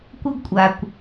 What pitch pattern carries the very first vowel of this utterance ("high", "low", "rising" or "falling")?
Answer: high